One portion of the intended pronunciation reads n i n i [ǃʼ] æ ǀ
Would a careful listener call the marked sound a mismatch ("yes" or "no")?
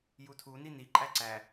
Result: no